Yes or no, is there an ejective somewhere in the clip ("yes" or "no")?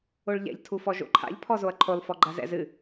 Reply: no